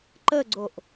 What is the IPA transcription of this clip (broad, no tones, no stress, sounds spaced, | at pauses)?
ǃ ə ɡ͡ǀ o ʔ